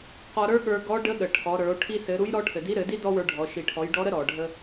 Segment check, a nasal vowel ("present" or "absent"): absent